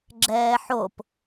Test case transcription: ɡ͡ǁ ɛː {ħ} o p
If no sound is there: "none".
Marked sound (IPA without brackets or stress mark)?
ħ